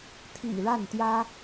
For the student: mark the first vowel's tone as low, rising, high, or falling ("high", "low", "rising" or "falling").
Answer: low